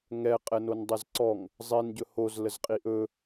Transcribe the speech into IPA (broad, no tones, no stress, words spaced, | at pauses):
ŋɛ qʼɛnondˤɛzǀɔŋ | zˤin ɟɵhoz ləzqʼiʔɵ